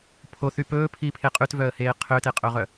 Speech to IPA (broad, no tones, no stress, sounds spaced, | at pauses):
pʰ o θ y p ɵː pʰ iː pʰ e qʼ ʉ t v œ ə̯ h eː qʰ ø t e qʼ ɵː ʁ œ